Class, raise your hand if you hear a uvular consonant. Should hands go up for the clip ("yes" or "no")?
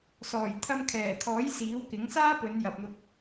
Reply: no